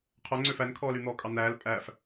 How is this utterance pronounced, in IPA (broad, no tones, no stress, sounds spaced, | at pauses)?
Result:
qʰ œ ŋ͡ǀ ø f æ n kʰ ɔː l y n̪ ɔː kʼ ɑ n̪ æː l pʼ æ f